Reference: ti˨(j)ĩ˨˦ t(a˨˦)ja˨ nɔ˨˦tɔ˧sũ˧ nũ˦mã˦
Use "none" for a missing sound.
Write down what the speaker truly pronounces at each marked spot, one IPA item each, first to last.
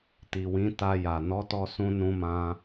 w, a˧

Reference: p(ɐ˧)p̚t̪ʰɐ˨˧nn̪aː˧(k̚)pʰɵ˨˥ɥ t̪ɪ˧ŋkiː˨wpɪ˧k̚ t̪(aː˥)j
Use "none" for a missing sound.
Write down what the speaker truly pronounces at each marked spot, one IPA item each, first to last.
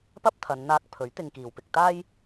ɐ˥, k̚, aː˥

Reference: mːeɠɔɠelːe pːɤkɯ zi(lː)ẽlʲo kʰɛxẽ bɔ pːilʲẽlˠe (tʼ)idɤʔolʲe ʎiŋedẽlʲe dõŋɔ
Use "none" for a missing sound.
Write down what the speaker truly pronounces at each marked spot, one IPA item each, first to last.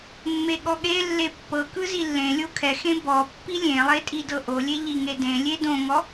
lː, tʼ

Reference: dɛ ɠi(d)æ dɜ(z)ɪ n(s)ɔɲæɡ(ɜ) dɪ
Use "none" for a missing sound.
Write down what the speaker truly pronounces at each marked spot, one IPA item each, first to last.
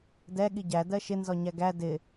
ɟ, ʃ, z, æ

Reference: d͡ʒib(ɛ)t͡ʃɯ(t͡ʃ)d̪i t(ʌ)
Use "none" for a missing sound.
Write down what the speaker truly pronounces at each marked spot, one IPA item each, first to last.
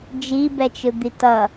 ɛ, none, ʌ

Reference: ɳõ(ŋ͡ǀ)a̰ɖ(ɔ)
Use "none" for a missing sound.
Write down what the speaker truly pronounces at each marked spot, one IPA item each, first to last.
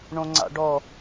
ŋ͡ǀ, ɔ

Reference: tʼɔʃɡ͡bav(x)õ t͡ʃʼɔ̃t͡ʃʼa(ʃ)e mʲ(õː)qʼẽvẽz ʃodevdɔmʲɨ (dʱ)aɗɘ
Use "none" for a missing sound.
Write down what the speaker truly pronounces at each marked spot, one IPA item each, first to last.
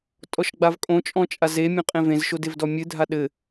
kʼ, z, õ, dʱ

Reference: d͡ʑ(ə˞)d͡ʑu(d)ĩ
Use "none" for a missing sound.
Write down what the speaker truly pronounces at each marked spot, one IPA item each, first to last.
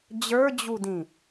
ə˞, d

